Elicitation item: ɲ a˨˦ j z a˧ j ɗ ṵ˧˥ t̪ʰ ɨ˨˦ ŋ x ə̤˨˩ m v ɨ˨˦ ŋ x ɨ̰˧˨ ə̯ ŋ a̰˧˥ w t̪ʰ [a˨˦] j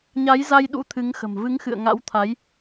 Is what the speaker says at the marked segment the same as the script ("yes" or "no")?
yes